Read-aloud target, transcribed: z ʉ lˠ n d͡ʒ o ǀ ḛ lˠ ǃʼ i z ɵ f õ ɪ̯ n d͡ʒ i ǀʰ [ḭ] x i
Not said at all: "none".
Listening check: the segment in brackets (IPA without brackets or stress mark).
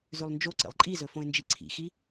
ḭ